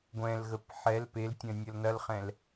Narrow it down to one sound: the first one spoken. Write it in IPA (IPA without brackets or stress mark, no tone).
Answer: ɡʷ